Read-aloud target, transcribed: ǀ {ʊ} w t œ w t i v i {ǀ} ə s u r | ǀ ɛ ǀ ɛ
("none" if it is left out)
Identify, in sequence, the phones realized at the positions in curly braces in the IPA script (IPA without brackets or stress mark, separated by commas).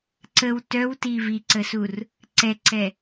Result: ə, ǀ